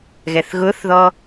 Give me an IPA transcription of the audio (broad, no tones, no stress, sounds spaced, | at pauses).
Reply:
ɣ ɛ θ ɣ ʊ θ ð ɔ